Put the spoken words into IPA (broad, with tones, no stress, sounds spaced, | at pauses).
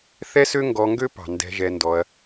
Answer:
θ ɛ˦ s ø˦ ŋ ɡ ɔ˧ ŋ ɡ ø˦ p ɑ̤˨ n d ɛ̤˧ ʒ ɛ˧ n d ɔ˧ ɐ̯